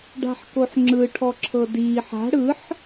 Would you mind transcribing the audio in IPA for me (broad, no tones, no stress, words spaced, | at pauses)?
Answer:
ɖa̤ħkoħŋ͡ǁɯ ʈʰɔǁʰɤdiːħ a̤ ɽɯħ